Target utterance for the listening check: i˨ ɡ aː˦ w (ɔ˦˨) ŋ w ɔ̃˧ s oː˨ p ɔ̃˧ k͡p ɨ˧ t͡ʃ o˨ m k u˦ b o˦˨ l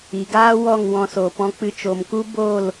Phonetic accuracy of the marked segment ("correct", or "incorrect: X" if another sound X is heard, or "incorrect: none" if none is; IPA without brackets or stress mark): correct